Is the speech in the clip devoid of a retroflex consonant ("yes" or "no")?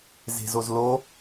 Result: yes